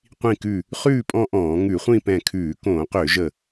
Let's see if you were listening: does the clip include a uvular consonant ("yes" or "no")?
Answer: yes